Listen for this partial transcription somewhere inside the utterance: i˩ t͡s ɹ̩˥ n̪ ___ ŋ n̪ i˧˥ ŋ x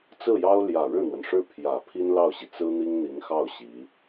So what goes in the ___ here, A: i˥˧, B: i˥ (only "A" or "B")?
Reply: B